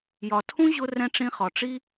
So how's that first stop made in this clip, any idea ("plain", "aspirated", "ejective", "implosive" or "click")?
aspirated